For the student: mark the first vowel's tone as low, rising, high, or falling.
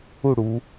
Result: falling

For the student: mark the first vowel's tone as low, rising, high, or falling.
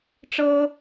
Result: high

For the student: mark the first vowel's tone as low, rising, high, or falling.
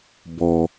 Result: low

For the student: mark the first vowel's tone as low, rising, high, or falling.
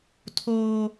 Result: high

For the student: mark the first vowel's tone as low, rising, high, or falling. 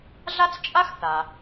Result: high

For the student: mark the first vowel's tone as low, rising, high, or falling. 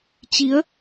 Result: rising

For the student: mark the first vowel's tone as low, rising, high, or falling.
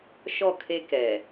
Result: falling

